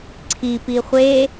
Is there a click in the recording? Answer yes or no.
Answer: yes